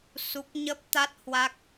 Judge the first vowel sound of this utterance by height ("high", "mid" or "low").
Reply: high